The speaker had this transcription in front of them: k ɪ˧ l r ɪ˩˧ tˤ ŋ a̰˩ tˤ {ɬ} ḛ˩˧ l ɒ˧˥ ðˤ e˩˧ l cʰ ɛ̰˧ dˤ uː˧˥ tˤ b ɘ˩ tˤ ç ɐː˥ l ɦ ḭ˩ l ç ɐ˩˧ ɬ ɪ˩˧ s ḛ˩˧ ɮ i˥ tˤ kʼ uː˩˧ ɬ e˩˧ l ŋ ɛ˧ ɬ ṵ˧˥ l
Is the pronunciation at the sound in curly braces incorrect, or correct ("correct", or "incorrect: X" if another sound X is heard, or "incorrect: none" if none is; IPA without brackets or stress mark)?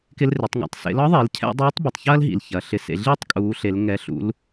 incorrect: s